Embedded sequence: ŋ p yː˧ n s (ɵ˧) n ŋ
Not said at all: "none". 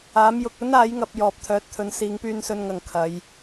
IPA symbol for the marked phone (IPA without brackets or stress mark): ɵ˧